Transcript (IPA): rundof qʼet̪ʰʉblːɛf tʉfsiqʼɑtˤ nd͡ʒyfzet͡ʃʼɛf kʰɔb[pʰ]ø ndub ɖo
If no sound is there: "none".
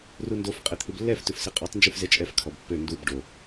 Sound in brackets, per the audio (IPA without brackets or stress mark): pː